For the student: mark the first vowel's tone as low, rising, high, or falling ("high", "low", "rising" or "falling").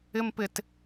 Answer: high